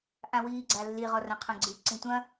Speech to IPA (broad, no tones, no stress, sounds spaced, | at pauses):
ʔ ã w iː ɡ͡ǀ a lː i ʁ ɔ r ã qʰ ɐ̃ ɡ͡ǀ ɨ ǀ ĩ tʷ ɐ̃